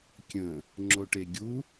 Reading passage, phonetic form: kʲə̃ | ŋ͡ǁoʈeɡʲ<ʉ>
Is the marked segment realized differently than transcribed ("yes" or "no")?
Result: yes